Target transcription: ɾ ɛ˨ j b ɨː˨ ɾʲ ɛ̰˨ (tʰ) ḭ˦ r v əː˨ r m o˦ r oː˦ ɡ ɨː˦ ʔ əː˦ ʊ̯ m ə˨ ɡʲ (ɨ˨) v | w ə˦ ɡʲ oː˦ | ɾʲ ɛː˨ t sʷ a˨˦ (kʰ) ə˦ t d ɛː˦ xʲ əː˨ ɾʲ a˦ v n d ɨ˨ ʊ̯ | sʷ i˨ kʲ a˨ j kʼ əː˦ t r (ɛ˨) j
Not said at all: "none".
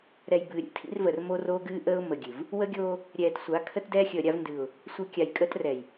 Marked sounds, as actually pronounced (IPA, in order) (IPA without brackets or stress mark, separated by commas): tʰ, ɨ˨, kʰ, ɛ˨